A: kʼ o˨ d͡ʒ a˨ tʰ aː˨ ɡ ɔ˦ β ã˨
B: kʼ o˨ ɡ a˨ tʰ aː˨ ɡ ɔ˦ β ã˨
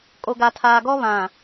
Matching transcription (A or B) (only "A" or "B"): B